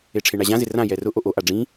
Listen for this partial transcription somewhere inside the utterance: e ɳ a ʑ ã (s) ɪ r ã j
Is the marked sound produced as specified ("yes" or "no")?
no